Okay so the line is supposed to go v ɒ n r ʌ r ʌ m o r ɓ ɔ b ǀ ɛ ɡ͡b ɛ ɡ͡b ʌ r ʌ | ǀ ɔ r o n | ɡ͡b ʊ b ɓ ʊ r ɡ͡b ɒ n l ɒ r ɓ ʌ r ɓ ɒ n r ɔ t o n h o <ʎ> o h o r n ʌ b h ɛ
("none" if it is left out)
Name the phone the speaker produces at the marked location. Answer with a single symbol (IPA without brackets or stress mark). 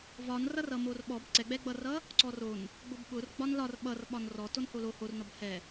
l